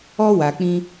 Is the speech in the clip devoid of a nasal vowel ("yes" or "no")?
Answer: no